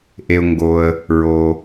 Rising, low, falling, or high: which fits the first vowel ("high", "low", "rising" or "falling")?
low